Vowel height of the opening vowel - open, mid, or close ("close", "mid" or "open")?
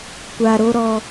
open